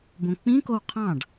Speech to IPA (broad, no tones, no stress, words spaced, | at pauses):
bõk͡pĩkow qʰɑ̃ɖ